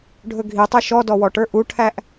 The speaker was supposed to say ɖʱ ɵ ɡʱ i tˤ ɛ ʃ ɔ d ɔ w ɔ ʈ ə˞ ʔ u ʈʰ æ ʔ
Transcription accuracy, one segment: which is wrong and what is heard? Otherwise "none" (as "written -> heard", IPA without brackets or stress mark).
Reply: none